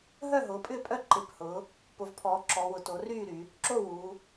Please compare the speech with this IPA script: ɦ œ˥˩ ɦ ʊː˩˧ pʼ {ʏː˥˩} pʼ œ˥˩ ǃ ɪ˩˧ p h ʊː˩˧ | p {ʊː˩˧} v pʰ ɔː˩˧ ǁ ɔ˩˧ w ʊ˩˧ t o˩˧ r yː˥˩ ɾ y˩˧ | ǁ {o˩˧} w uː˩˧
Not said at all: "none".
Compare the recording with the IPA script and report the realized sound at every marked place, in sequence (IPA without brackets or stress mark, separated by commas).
ʏː˥˩, ʊ˩˧, o˥˩